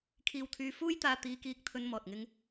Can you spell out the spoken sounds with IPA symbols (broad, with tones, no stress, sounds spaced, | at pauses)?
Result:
kʰ iː˧ w t̪ʰ yː˧ f uː˥ j t̪ aː˧ t̪ iː˧ k iː˧ k̚ t̪ʰ ɵ˧ n m ɔː˨ t̚ ŋ ɪ˥ ŋ